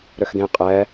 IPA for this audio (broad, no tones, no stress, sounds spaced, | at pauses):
ɾ ø x d̪ ẽ qʼ ɛː